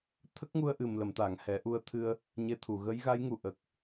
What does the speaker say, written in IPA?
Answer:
t̪ʰ ə˦˥ k̚ ŋ u˧ ə̯ ʔ ɨ˨˩ m l ə˨˩˨ m t̪ a˨˩˨ ŋ h ɛ˨˩˦ ʔ u˧ ə̯ t̪ʰ ɨ˧ ə̯ | ɲ e˧ t̪ʰ u˨˩˨ ɣ ə˧˥ j ɣ a˧˥ j ŋ u˨˩ ʔ ə˨˩ k̚

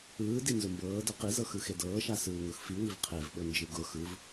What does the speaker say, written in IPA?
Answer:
ɯː d i n z ʊ m b ɤː d ɤ q i z ɤ x ɯ x e d ɤː ʃ a s ɯː ŋ ʊ x f i w i v qʰ e v ɓ ɤ n d͡ʒ ɯ ɡ ʊ x ɯ v

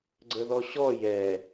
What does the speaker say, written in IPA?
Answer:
ɡ͡ǀ ə ð ɔ ɕ ɔ j ɛ

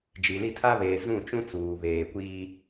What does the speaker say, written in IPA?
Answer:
d͡ʒ i˨ l i˦˨ tʰ a˦ β eː˨ z ũ˦˨ t͡ʃ ũ˦ t͡s uː˨ β eː˨ kʷ iː˦

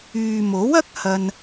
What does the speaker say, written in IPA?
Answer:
yː˨ m o˨˥ w ɐ˥ k̚ h ɐ˧ n

